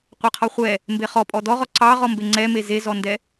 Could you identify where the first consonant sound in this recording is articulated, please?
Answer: uvular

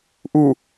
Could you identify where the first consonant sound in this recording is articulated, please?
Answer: glottal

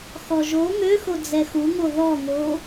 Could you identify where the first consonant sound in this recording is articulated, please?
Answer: velar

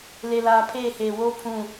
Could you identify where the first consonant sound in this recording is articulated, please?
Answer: alveolar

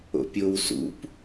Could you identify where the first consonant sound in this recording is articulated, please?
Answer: labial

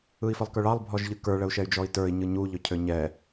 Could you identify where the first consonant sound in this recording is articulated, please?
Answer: labial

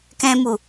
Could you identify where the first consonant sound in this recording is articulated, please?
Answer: velar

